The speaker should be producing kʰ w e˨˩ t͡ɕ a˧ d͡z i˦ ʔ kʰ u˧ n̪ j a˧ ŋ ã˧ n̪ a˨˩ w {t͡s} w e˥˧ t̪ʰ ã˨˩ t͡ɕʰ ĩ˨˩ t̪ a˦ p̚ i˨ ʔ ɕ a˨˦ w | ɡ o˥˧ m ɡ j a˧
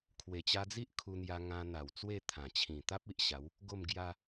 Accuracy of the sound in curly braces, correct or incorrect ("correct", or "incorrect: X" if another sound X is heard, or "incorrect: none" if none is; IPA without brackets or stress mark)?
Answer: correct